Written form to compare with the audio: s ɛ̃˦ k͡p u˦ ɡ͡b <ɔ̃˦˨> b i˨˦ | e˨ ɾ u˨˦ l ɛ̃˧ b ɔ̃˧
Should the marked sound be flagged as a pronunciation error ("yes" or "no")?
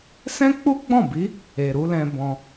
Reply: no